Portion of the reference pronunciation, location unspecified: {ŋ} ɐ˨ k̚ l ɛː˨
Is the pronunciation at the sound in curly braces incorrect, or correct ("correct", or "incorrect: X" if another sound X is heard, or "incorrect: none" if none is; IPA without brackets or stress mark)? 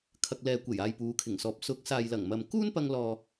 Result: incorrect: kʰ